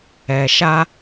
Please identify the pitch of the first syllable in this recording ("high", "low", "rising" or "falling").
low